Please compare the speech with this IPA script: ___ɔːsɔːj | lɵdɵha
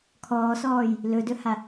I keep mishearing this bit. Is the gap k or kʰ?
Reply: kʰ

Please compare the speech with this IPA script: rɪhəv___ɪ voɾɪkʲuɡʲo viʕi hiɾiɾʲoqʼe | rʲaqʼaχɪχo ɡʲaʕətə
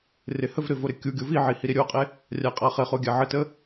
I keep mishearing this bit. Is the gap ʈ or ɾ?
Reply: ɾ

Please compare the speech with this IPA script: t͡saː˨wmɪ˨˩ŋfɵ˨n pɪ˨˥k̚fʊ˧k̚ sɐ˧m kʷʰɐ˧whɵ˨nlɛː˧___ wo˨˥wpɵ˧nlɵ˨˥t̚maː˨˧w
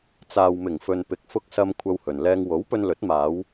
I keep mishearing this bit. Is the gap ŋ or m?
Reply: ŋ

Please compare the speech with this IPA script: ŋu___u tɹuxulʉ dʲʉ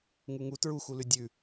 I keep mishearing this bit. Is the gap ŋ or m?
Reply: ŋ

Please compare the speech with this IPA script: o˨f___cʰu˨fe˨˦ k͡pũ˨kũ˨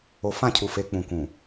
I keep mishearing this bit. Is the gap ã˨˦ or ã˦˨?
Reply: ã˦˨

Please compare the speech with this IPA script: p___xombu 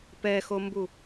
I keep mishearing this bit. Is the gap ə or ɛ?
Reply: ɛ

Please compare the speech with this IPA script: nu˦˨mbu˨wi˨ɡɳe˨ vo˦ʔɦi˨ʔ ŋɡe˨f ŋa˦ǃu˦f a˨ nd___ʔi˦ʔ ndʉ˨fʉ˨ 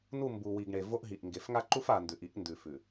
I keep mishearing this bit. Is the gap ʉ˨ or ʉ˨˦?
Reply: ʉ˨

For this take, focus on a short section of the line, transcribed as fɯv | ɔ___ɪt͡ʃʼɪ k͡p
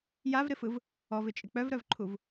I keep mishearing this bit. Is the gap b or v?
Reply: v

